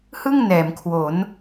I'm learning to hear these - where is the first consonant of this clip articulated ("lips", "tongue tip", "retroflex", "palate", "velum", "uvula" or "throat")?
throat